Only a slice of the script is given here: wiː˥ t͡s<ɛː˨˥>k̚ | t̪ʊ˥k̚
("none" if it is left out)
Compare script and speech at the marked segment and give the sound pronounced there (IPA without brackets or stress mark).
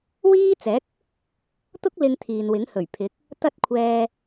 ɛː˨˥